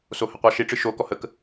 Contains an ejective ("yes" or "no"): no